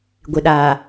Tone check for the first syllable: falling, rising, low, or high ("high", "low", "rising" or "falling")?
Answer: low